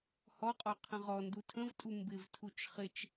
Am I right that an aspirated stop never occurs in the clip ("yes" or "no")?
no